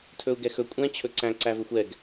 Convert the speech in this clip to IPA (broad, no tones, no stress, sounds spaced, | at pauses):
tʰ ɵ u̯ ɡ ɛ x ɵ kʷʼ ɛ̃ t͡ɕʰ ɵ ǀ æ̃ ǀ æ v ɵ xʷ ɛ ɡ